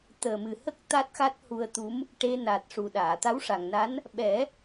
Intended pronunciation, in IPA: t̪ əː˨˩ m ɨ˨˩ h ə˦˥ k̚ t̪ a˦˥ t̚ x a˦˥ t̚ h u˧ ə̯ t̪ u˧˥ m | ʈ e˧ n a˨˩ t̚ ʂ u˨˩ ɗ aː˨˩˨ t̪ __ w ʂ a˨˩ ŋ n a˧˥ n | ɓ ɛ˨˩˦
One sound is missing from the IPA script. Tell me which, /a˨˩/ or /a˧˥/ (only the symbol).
a˧˥